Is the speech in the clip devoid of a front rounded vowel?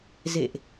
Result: yes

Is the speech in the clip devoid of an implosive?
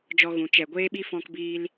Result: no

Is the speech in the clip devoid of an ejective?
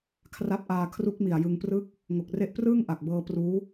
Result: yes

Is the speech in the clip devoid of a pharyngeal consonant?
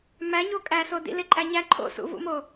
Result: yes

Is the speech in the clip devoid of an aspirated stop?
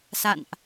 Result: yes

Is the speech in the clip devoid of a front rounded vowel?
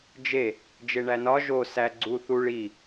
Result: yes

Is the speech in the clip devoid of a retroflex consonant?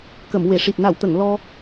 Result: no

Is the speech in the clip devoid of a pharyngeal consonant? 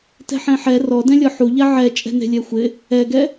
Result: no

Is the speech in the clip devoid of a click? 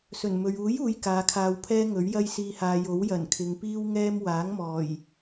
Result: yes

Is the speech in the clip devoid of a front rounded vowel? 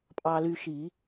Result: no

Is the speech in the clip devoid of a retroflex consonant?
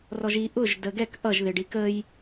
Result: no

